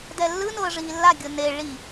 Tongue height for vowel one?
mid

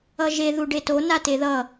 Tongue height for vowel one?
mid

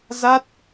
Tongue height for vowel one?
low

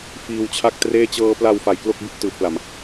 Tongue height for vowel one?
high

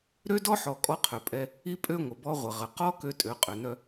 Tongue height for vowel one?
mid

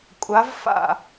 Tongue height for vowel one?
low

